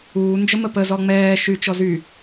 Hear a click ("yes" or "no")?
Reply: no